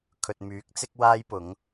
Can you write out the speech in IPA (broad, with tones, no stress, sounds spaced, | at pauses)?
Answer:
kʰ ɵ˨ t̚ m yː˨˥ k̚ t͡s ɪ˥ k̚ w aː˥ j p ʊ˨˥ ŋ